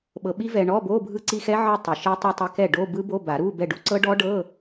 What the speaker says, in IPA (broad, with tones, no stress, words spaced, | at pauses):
ɓɤ˧ɓi˦˥vɛ˧ ɳɔ˧˥˧bo˧˥˧ bʱɯ˥˩ǀi˥˧xɛ˦˥ ʕɯ˥˧tˤu˨˩˦ʃe˦˥ tˤu˧tˤe˧ kɛ˥˩ɖo˧˥˧bɯ˦˥bo˧˥˧ ba˨˩˦ɾu˧˥˧ bɛ˥˩ɖu˥˧ ǀɤ˦˥ɖɔ˦˥ɖɤ˧˥˧